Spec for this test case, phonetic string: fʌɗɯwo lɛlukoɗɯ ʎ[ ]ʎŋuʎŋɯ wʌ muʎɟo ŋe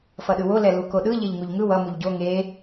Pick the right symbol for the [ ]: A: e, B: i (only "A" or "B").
A